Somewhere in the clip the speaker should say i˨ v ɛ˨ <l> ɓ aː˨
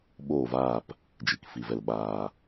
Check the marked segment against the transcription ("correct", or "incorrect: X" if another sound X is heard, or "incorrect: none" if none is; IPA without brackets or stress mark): correct